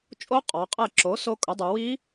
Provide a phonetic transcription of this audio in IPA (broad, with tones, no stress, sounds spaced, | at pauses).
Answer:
t͡ʃʼ o˧˥ qʼ ɔ˩˧ qʼ ɛ˧˩ ǁ o˩˥ s o˧˥ kʼ ʊ˩˥ dˤ u˩˧ w i˧˥